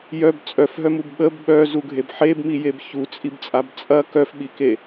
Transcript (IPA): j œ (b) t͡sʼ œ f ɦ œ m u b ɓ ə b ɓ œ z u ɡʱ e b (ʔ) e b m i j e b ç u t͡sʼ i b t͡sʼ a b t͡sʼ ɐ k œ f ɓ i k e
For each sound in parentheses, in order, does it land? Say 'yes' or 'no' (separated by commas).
yes, no